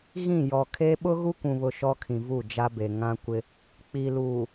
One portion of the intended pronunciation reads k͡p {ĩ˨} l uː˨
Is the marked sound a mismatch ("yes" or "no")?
yes